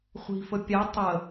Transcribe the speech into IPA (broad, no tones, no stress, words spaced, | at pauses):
χʷi̤fə pʲa tˤə